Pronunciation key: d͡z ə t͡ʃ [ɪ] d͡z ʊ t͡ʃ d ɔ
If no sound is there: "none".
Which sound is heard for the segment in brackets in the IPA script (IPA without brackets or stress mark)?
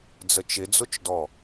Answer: ɪ